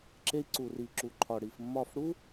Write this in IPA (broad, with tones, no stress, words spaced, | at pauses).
ǁe˧i̯ ǀu˨ri˨ǁu˨ǃʰɒ˨ ɽi˨fmːɒ˦˨f ɽu˦